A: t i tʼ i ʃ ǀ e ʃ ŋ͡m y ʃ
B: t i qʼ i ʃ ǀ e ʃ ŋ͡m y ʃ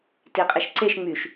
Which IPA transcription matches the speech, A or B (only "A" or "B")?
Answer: B